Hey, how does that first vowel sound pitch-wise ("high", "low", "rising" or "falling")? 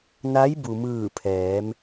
rising